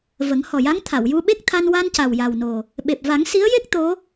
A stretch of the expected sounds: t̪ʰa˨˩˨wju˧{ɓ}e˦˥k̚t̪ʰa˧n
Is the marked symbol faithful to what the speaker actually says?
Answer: yes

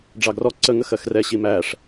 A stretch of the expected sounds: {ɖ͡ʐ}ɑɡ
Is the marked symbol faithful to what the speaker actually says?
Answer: yes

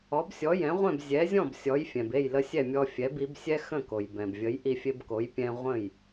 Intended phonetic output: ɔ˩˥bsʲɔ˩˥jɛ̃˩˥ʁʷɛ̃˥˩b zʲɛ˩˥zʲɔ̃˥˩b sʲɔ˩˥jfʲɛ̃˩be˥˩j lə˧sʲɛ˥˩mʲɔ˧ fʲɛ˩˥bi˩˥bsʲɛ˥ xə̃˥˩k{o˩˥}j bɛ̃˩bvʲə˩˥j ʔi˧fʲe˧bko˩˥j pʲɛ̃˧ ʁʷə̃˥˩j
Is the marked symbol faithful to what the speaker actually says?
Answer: no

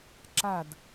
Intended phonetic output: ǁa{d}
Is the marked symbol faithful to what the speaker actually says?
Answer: yes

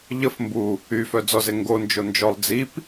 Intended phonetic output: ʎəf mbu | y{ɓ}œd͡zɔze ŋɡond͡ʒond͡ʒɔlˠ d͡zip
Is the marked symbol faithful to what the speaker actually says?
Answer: no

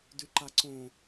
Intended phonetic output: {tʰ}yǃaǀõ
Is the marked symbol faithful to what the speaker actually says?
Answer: no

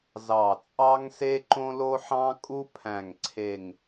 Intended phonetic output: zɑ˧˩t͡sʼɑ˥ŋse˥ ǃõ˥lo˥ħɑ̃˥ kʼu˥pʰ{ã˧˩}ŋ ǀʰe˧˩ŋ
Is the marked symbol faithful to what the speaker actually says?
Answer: no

